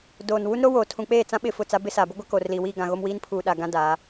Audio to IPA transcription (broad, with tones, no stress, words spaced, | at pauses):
doː˨n wu˦nɾo˦ woː˨tʰũ˨k͡peː˦˨t͡sã˦ ɓɪ˦˨fʊ˦˨t͡sa˦ bɪ˦saː˨bʊ˦ ɡʷa˦ko˨rliː˨ wiː˦˨ɡã˨ ɣo˦mwiː˦n pʰuː˨ɗa˨ ɡã˦daː˨˦